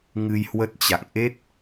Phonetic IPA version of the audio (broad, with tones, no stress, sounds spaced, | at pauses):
ŋ ɨ˧ j h w ə˦˥ t̚ t͡ɕ a̰˧˨ ŋ ʔ e˦˥ t̚